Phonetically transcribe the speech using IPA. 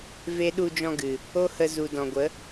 v e˦ ɗ u˧ d͡ʒ ɔ̃˧ ɡ ɨ˨ | o˦ h ə˧ z u˨ d ɔ̃˨ ɡʷ ə˨˦

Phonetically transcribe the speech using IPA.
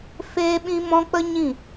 f eː˦ ɓ ĩ˦ m ɔ̃˦ k͡p ə˦ ɲ ĩ˦˨

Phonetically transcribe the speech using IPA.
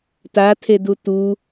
t a tʰ e d u t u

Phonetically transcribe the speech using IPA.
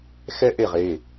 x ɛ˥ ʔ e˥˨ ʁ e˩˧˩

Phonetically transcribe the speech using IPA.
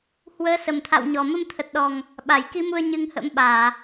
h w əː˨˦ s ə˨˩ m t̪ʰ a̰˧˨ w ɲ ɔ˨˩ m ə˧ m t̪ʰ ə˨˩ t̚ ɗ ɔ˨˩ ŋ | ɓ a˧˩ j k i˨˦ m u˧ ə̯ ɲ ɨ˧ ŋ h ə̰˧˥ m ɓ aː˧˩˨

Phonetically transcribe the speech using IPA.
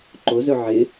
ǃ o z ɵ ʕ ɪ

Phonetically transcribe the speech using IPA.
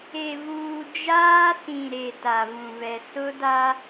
e˨ v uː˨ d͡ʒ aː˦ s ĩ˨ ɾ e˨ t a˨ v ũ˨ v ɛ˨ s ʊ˦ d a˦

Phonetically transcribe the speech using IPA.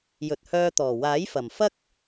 j ɵ˨ t̚ h œː˧ t̪ ɔː˨˩ w aː˨˥ j f ɐ˨˩ m f ɐ˥ k̚

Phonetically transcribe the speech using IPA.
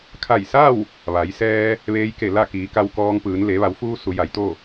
kʰ a˧˩ j s a˥˨ w | ʋ a˩˧ j s ɛː˧ | ʋ eː˧ j k e˧˩ l a˥˨ k iː˩˧ k a˧ w k ɔː˧ ŋ p ɯː˩˧ n l e˩˧ ʋ a˩˧ w f uː˧ s u˩˧ j a˩˧ j t̪ o˥˨

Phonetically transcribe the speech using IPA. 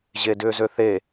ʑ e d ʏː z ø θ e

